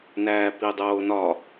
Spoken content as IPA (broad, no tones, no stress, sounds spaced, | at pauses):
n æː p i dˤ oː n ɒ